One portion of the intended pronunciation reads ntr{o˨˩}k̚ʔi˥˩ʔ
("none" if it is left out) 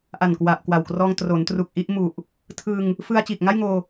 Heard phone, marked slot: u˨˩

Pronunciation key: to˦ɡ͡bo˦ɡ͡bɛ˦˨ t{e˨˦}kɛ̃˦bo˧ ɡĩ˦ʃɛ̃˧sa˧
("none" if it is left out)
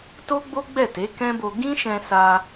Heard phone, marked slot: e˨˦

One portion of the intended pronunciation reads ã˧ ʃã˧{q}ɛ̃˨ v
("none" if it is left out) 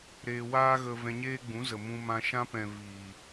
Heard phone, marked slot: p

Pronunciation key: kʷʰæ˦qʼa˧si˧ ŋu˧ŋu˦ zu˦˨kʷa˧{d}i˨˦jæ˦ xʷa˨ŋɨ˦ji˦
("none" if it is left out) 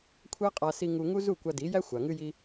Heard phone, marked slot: d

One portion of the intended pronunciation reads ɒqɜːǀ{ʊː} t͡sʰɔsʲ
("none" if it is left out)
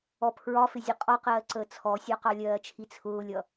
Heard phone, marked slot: əː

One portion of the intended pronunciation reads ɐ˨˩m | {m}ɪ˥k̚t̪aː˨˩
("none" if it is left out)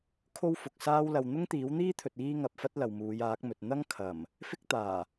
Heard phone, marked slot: f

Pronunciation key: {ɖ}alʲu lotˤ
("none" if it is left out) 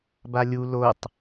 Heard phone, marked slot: b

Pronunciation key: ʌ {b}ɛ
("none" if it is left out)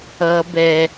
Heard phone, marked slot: b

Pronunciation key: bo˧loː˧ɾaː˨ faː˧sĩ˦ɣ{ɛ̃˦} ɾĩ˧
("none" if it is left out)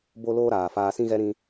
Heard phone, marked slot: ɛ˦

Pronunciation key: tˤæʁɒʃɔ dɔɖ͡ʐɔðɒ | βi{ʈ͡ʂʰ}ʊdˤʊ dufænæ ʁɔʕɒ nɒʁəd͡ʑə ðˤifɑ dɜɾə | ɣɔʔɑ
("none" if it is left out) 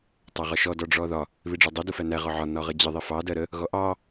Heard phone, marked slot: ɖ͡ʐ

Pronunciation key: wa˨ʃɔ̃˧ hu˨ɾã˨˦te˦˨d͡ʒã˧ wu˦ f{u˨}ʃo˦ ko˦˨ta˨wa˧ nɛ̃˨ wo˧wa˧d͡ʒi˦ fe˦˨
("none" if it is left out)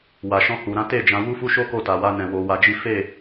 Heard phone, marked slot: u˦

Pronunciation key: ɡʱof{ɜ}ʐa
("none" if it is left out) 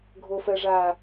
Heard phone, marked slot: ɜ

